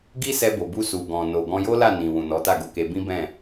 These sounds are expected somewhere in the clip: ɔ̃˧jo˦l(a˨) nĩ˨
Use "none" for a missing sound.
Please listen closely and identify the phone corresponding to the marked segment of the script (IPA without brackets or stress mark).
a˦˨